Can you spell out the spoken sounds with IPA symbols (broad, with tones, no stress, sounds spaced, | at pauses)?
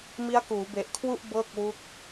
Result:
m i˦˥ a̯ k uː˩˦ b e˨˩ ʔ kʰ w u˥˩ ʔ b ɤː˥˩ k̚ w u˦˥ k̚